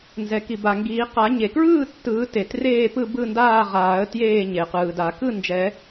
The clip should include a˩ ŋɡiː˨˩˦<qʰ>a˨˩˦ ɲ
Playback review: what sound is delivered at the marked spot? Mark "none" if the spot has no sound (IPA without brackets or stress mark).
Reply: q